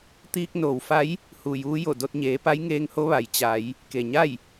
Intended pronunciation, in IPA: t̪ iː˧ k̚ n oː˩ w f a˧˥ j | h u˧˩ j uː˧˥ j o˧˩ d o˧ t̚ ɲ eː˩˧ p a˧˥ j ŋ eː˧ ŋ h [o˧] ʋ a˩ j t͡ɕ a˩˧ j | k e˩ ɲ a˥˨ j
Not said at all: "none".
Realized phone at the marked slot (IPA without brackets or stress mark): o˧˥